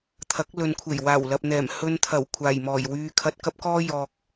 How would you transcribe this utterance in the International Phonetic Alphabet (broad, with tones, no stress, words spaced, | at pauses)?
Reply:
t̪ʰɐ˨˥k̚ lɵ˧n kʷʰe˨˩jwaː˨˩wlɐ˨p̚n̪ɛː˨˩m hɵ˧nt̪ʰɐ˨˩w kʷʰaː˨˩jmɔː˨˩jwyː˧ kʰɐ˧t̚kɐ˥p̚kɔː˥ jɔː˨k̚